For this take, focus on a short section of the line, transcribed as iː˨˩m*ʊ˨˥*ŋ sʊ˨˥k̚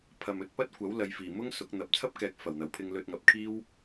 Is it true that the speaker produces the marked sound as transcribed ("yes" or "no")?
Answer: no